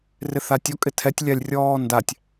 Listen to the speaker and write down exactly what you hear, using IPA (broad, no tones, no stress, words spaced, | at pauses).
rɪθatʲɔ kʼɪtʰɛtʲ lʲalʲrʲɔːndatʲ